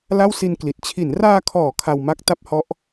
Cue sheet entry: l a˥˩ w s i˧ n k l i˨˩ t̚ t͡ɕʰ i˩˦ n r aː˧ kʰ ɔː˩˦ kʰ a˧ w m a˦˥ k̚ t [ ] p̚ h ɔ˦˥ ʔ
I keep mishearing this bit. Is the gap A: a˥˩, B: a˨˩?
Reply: A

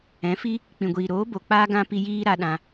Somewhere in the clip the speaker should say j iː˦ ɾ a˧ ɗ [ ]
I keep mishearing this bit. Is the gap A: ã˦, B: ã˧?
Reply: B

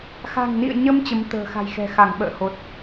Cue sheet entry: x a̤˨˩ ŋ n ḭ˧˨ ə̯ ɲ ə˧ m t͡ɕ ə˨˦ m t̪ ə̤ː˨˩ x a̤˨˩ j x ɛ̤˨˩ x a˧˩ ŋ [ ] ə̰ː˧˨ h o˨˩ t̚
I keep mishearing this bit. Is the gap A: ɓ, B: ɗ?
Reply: A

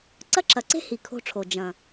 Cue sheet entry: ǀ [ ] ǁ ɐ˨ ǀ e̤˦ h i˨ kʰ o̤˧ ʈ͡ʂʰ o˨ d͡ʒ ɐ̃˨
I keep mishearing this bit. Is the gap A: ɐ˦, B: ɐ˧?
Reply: A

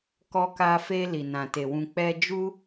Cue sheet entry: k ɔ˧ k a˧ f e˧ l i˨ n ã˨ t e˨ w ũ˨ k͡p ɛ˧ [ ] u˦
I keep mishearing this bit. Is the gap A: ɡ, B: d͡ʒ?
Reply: B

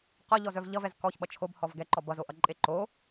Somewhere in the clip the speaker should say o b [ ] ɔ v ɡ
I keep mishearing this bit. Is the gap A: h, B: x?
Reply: A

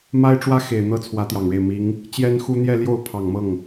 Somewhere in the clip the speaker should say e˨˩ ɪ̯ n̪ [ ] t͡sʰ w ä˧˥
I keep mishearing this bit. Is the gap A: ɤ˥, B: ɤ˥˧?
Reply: A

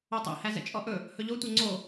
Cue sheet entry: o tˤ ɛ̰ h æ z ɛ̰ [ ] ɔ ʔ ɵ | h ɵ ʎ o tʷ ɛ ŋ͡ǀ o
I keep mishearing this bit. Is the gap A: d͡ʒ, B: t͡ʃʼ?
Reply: B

